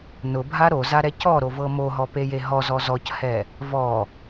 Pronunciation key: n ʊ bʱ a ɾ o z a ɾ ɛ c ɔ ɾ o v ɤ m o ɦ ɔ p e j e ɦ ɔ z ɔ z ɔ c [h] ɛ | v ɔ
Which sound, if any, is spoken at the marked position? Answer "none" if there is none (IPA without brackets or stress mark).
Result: h